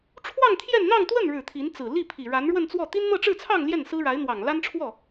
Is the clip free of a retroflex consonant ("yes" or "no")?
no